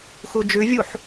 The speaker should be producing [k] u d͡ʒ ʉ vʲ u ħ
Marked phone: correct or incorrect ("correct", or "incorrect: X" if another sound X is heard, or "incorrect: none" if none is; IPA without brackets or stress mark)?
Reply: incorrect: x